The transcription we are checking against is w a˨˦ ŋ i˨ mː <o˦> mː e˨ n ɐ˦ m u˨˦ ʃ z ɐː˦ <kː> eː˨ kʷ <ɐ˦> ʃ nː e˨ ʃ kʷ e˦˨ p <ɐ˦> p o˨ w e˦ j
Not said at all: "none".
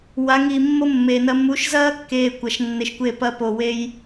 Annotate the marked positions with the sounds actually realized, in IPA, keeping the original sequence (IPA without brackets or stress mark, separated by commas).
o˦, kː, ɐ˨, ɐ˦